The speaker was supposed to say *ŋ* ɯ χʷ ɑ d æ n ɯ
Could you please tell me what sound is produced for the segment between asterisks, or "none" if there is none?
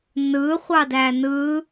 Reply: n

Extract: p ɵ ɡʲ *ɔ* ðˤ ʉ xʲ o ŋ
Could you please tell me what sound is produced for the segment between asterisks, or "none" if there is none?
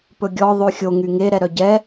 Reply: ɔ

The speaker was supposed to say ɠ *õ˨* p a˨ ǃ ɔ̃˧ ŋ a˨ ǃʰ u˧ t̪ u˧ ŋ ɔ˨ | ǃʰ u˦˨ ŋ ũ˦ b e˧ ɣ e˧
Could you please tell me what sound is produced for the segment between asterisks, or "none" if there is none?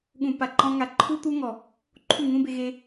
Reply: ũ˨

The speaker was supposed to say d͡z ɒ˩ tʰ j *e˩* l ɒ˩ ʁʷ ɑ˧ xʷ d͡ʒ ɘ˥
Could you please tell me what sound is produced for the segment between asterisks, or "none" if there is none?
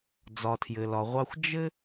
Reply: ɘ˩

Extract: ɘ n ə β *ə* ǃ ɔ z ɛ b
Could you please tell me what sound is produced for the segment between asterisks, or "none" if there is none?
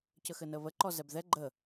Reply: ə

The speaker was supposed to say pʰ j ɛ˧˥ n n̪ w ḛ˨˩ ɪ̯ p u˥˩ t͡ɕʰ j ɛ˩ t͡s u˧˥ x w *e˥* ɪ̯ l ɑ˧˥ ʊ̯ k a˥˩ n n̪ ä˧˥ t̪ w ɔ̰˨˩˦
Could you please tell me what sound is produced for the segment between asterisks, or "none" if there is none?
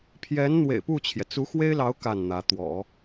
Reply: e˥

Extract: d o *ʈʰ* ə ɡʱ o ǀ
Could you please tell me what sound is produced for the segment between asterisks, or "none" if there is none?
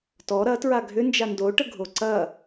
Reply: ʈ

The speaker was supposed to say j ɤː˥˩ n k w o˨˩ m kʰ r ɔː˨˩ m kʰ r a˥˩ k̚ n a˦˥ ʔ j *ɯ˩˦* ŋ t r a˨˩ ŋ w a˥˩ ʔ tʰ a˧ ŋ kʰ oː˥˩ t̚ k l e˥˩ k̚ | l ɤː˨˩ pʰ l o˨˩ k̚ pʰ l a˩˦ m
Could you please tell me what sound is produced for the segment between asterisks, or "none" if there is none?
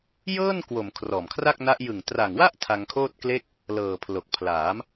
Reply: ɯ˨˩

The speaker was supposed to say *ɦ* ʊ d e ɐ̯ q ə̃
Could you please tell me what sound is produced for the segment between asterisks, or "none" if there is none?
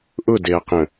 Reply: ʔ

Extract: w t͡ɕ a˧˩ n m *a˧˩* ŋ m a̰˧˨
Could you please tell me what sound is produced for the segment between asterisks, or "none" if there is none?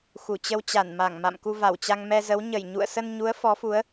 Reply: a˧˩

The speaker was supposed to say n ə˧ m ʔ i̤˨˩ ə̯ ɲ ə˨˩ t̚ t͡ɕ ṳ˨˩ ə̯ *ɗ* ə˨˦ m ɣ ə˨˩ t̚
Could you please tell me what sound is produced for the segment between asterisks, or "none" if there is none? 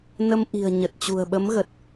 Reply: ɓ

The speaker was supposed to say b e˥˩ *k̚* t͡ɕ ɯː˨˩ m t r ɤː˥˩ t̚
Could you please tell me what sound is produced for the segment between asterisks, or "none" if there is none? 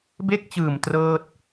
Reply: k̚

